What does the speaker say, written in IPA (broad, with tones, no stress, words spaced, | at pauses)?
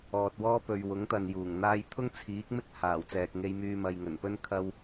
ɔː˨t̚wɔː˥ pɵ˨ɥwʊ˨˥ŋt̪ɐ˨n juː˨˩ŋ n̪aː˧jt̪ʰʊ˥ŋt͡sʰiː˨˥k̚mɪ˥k̚ haː˨˩wt͡sɛː˨k̚ŋe˧jmyː˧ mɐ˨j ŋɵ˨˩npɵ˥n kʰɐ˥w